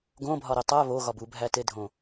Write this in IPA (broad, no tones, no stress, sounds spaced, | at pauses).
ɡ õ bʱ ɒ ɾ i tˤ æ β o ɣ ɒ b u bʱ æ t e dʱ õ